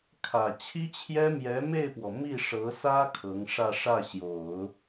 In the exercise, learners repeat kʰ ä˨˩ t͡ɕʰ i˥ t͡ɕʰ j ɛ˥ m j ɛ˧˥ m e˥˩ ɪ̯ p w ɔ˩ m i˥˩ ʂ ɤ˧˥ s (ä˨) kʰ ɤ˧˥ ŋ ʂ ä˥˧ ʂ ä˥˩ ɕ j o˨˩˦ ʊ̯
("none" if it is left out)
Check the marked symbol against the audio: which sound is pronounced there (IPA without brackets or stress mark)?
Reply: ä˥